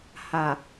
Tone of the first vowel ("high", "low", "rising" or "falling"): low